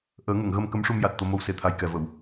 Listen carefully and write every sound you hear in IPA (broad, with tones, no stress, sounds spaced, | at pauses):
ʔ əː˨˩˦ ŋ ə˨˩˨ ŋ ɣ ə˧ m k ə˧˥ m ʂ u˧ m j a˨˩ t̚ t̪ o˧ m o˧ w s e˨˩ t̪ʰ a˨˩ j k ɛ˨˩ v ə˨˩˨ w